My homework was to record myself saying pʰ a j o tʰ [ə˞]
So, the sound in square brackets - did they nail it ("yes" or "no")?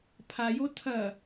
no